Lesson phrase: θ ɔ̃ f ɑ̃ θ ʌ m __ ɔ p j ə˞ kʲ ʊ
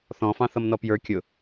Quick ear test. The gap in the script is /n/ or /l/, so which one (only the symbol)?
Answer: n